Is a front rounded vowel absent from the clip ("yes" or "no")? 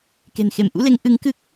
yes